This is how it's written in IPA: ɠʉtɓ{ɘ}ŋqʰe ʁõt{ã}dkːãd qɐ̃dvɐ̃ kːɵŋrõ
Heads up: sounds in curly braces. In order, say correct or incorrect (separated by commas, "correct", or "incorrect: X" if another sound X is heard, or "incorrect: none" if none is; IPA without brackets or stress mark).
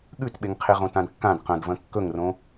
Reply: incorrect: e, correct